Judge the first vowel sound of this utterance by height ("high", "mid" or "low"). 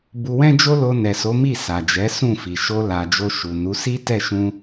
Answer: high